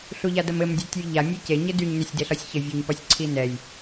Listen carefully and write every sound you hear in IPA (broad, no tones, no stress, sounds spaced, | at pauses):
ɬ u ʎ a d ɐ m ɘ m dʲ ɒ tʲ u j ʎ a mʲ ɒ j c e ɲ ɘ d y ɲ n e sʲ d e ɬ ɒ sʲ ç ɘ vʲ u ɲ p ɒ sʲ ǀʰ i n ɛ j